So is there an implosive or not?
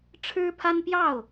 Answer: no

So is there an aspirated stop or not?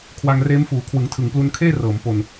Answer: yes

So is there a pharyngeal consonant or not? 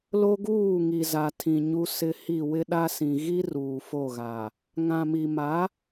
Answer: no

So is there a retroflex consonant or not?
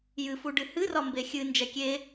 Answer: yes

